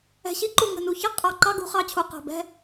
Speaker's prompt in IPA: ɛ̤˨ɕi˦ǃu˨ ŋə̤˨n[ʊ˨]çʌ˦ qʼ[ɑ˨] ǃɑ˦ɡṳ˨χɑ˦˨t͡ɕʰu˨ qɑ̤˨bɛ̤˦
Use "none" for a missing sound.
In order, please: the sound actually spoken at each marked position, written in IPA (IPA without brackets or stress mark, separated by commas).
u˨, ɑ˨